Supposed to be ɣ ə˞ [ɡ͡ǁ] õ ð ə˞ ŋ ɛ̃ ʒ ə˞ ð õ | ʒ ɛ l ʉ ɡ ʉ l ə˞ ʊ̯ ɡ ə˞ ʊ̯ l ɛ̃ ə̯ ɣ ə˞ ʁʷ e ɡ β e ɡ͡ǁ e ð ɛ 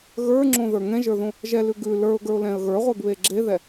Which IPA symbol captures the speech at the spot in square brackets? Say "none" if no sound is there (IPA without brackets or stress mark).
ŋ͡ǁ